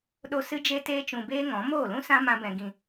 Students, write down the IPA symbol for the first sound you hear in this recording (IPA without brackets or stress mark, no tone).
ɗ